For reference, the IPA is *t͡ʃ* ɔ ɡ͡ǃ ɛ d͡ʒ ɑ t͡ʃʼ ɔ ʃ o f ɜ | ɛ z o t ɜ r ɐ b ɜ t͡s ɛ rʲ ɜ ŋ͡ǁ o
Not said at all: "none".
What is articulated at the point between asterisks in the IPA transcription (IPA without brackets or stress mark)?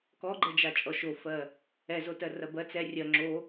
k